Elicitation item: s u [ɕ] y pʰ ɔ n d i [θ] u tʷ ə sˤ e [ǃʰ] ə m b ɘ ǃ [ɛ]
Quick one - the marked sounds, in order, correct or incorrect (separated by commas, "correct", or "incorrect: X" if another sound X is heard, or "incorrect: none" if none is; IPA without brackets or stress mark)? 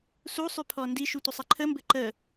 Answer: incorrect: sˤ, incorrect: ʃ, correct, incorrect: ə